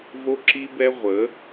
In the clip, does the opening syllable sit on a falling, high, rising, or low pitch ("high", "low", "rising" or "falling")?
high